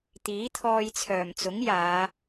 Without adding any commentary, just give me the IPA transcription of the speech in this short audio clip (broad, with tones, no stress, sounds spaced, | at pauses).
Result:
t̪ iː˨˥ t̪ʰ ɔː˧ j t͡sʰ œː˨˩ m t͡s ʊ˨˥ ŋ j aː˨˧